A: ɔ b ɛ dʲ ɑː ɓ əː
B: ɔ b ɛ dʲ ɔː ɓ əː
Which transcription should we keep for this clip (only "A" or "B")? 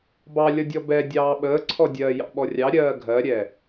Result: A